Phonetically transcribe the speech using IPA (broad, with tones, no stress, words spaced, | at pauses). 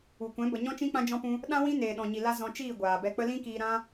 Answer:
u˨kʷɛ̃˨˦ bə˧ ɲɔ̃˦t͡ʃĩ˦ k͡pã˦d͡ʒɔ̃˦pũ˦ | ɗã˦ wĩ˦ neː˨ɗɔ̃˨ɲi˨ la˦ zɔ̃˧t͡ʃiː˦˨ ɡʷaː˨bɛ˧k͡pə˦ lĩ˦kiː˧ ɾã˦